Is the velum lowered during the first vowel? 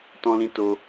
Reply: yes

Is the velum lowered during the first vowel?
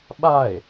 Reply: no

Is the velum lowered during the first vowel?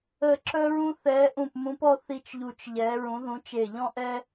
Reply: no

